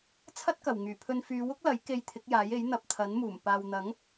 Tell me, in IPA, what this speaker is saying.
t͡sʰ ɐ˥ t̚ k ɐ˨˩ w ŋ yː˨˩ pʰ ɵ˧ n f yː˨˧ w ʊ˥ k̚ l ɐ˨˥ j k e˧ j t̪ʰ ɪ˨˥ k̚ j aː˨˥ j e˨˥ j n̪ ɐ˨ p̚ t̪ʰ ɐ˨˥ n m uː˨˩ m p aː˨ w n̪ ɐ˨˥ ŋ

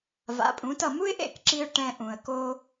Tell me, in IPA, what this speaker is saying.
v a̰˩˥ pʼ ũ˩˥ t ʌ˥˩ m u˥ ɪ̯ ʔ ḛ˥˩ k ǁ i˧ ʊ̯ ʈ ɛ̃˧ ʔ ũ˩ ə̯ k o˧

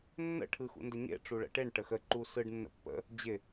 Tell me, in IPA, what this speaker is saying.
nː ə̰ ʈʰ ɯ x ṵ n d ə ɲ ḛ ʈ͡ʂ u ɭ ə̰ ʈ e ɳ ʈ ə x ə ǃ u s ɯ ɖ nː ə̰ pː ə̰ | d͡ʑ ɪ

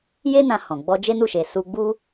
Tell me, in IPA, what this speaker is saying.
j e˦ n ã˧ h ɔ̃˨ ɡ͡b ɔ˧ d͡ʒ e˦ n u˦˨ ʃ e˨ s u˧ ɡ͡b u˦

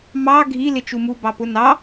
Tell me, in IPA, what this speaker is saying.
m ɑ ɡʱ i l ɪ t͡ʃ u m u b ɑ p ʊ n ɑ

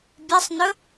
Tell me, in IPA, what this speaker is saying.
bʲ ɛ sˤ n ɵ

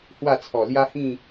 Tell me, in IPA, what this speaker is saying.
h w a˥˧ t͡sʰ ɔ˨˩ l j a˦ h ĩ˥˧

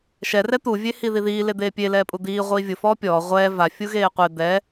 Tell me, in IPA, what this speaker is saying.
ʃ ɛ r ɛ t̪ u vʲ e h i ð i ð iː l e d̪ eː pʲ e l ɛː pʼ u d̪ iː ʁʷ iː vʲ ʊ f ɔː pʲ ɔː ʁʷ ɛː v a fʲ u ɣ eː qʷ e d̪ ɛ

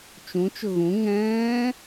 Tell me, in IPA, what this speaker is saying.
t͡ʃ ũ t͡ʃ ʊ ɣ ũ ŋ ɛ̃ː

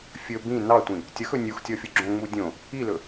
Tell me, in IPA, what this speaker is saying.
fʲ ɵ b ĩ n ɑ tʷ ĩ | tʲ ʌ x ɵ nʲ u x tʲ ɔ fʲ o ɡ͡ǁ õ ŋ͡m u dʲ õ | i l ɵ

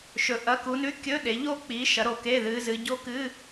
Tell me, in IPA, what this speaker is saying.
ʃ ɵ˩˧ ʔ ɐ˩˧˩ k u˩˧ n ʉ˧˥˧ kʲ ɵ˧˥˧ ɗ e˩˧ ʎ o˦˥ k͡p i˩˧ ʃ ɐ˩˧ ɾ o˩˧ k e˩˧˩ ð ɨ˩˧ z ɨ˩˧ ɟ o˦˥ k ɨ˧˥˧

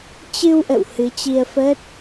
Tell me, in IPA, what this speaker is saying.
t͡ɕ ɨ˧ w ʔ ə̰˧˨ w h ɨ˨˦ t͡ɕ i˧ ə̯ f əː˦˥ t̚

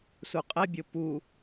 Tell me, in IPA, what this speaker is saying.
s u qʼ ɛ bʲ o p u

